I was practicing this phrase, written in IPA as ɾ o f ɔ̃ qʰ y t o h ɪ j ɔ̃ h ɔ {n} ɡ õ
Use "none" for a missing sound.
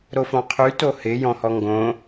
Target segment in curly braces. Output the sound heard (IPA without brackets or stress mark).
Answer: ŋ